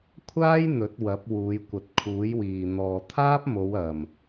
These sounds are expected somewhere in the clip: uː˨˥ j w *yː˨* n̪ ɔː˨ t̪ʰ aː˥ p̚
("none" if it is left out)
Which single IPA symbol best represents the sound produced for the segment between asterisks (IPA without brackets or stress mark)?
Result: iː˨